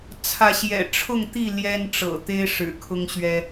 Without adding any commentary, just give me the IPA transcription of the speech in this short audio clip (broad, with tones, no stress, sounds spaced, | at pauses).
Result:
t͡sʰ ä˨˦ ɕ j ɛ̰˨˩ ʈ͡ʂʰ ʊ˥˨ ŋ t̪ i˥˨ l j ɛ˦ n ʈ͡ʂ ɤ̰˨˩ t̪ e˦ ɪ̯ ʂ ɻ̩˨˩ kʰ ʊ˦ ŋ ɕ ɥ ɛ˦